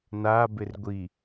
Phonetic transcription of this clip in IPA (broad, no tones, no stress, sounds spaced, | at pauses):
n a b ɪ r ɡʷ i